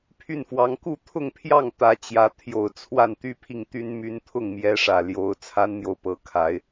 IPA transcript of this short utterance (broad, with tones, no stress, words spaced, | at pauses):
pʰy˥˩nfwɑ˧˥ŋ ku˥˧t̪ʰʊ˥˧ŋpʰjɑ˥˩ŋ t̪ä˧˥t͡ɕjä˧˥ t̪ʰjo˨˩ʊ̯ t͡sʰwa˥˩n t̪y˥pʰi˥˩ŋt̪y˥n my˥n t̪ʰʊ˥˩ŋmjɛ˧˥ʂä˨˩ ljo˧˥ʊ̯ t͡sʰa˥nn̪jo˨ʊ̯ pɤ˧˥kʰa˧˥ɪ̯